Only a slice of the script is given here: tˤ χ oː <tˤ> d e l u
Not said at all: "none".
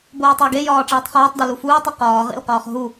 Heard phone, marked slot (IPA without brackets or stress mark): tˤ